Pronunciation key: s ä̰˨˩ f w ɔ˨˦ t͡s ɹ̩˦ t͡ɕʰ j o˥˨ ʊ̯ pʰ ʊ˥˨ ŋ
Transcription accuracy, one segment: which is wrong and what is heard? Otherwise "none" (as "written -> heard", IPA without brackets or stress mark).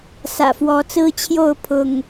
none